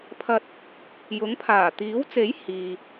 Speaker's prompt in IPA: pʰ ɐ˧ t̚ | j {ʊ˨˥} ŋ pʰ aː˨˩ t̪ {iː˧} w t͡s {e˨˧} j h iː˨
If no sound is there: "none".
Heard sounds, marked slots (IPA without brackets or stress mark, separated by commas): ʊ˨˥, iː˨˥, e˨˥